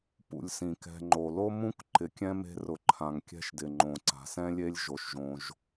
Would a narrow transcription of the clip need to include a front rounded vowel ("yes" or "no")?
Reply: no